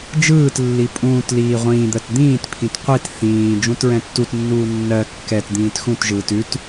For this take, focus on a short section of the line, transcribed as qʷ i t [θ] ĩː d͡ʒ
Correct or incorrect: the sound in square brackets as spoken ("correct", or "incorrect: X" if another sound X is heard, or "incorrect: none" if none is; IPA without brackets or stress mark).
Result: correct